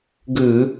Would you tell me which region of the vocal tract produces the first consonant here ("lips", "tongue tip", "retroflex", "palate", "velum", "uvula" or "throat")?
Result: velum